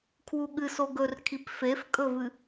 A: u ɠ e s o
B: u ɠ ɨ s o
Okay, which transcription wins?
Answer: B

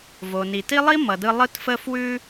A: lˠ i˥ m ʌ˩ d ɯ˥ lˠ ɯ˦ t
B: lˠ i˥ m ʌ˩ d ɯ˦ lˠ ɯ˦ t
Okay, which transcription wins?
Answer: B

